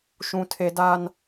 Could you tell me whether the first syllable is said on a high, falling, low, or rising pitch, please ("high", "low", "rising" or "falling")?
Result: high